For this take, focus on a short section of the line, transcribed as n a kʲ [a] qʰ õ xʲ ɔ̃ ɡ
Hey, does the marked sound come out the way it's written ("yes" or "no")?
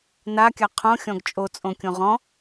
yes